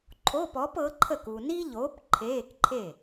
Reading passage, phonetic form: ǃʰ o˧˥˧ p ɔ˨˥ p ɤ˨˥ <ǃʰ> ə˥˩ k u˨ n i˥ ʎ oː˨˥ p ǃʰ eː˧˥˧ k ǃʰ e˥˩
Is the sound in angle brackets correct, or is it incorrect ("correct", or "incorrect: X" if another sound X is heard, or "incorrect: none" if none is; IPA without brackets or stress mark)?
correct